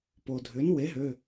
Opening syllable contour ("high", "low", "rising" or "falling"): low